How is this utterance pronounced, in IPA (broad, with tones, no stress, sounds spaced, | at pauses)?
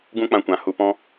ɡ ũ˦ k͡p ã˧ kʷ ã˨ h u˧ p ɔ̃˦